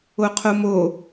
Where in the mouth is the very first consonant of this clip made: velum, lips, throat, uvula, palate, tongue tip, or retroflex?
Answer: uvula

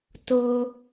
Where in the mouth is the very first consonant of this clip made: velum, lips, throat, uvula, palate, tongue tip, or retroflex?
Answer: tongue tip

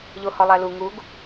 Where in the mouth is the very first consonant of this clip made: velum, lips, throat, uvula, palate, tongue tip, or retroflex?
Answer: palate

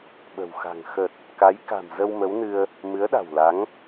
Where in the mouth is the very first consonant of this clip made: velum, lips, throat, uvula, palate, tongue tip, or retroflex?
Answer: lips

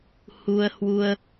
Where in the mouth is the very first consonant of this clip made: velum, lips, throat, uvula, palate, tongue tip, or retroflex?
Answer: throat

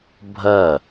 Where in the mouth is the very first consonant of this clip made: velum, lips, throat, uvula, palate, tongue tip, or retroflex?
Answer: lips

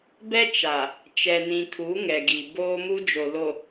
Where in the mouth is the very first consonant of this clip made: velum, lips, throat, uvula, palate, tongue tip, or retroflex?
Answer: lips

